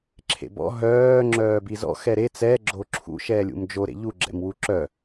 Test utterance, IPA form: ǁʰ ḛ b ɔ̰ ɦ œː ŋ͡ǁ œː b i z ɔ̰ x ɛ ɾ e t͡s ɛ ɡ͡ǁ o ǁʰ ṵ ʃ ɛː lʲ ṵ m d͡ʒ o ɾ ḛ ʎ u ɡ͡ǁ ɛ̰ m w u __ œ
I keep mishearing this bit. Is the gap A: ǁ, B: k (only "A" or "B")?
A